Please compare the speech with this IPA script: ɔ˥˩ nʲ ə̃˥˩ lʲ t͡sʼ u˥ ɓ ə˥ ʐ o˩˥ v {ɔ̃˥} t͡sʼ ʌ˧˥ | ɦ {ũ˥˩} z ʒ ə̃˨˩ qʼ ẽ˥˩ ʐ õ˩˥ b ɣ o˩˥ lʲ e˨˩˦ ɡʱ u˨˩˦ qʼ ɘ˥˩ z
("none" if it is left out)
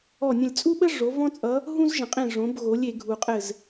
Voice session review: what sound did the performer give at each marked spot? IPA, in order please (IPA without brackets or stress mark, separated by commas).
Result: ɔ̃˥, ũ˥